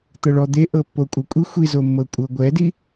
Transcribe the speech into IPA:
t̪ ɤ ɭ ɔ d̪ e ʔ ɤ pː o kʷʼ ɤ kʷʼ i xʷ i z o mː ɤ kʷʼ ɤ ɡʷ ɛ d i

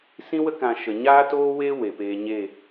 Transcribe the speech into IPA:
s ĩ˦ w ə˦ k ã˨ ʃ ə˨ ɲ aː˦ t oː˦ w eː˦ w e˨ p eː˧ ɲ eː˦˨

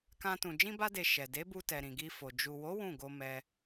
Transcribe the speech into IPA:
k ã˧ t ũ˨ d͡ʒ ĩ˧ b a˧ d e˨ ʃ ɛ˨ d e˨˦ b u˧ t ɛ˨ ɾ ĩ˨ ɡ i˧ f o˨ d͡ʒ u˨ w o˨˦ w ũ˦˨ ɡ o˧ m ɛ˧

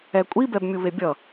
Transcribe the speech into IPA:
ɛ kʷʼ i b ɛ b mʲ u β e bʲ ʌ

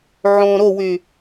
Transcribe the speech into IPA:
ʕ õ ɾ o w y

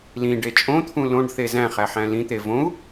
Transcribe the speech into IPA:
l ĩ ɖ e t͡ʃʼ õ t̪ʰ ũ l õ ɖ θ e z æ̃ χ æ ħ æ̃ l ĩ t̪ e v õ u̯

